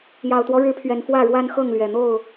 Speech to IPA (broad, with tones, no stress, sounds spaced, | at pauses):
j ɑ˨˩ ʊ̯ t̪ w ɔ˦ ɻ ɻ̩˨˦ pʰ ɥ ɛ˨˩ n f w ä˥˨ ɻ w a˦ n x ɤ˥˨ ŋ l ɥ ɛ˨˩ n̪ o˥˨ ʊ̯